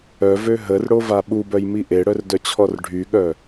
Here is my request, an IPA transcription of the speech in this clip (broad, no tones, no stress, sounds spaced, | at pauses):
œ v ø ɦ ə r ɽ o v a ɓ u b œ j m i ʔ e ɽ œ r d œ t͡ɕʰ ɔ r ɖʱ y ɠ œ